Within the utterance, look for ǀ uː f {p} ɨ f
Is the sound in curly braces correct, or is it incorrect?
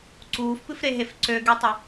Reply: correct